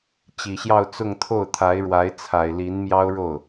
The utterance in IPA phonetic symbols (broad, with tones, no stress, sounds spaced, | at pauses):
t͡ɕ i˨˩ ɕ j ɑ˥˧ ʊ̯ t͡s ʊ˥˧ ŋ t̪ʰ o˥˩ ʊ̯ t̪ʰ a˧˥ ɪ̯ ɻ w a˧˥ ɪ̯ t͡sʰ a˨˩ ɪ̯ l i˧˥ n m j ɑ˥ ʊ̯ ɻ o˥˩ ʊ̯